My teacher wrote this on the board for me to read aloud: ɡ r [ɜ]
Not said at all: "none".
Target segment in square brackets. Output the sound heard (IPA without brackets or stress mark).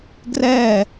ɛ